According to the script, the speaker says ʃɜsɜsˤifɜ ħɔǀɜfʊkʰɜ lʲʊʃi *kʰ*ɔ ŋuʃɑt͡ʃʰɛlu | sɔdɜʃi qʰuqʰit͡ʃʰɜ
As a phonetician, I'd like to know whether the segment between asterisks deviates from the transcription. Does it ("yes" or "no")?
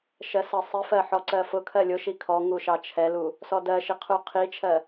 no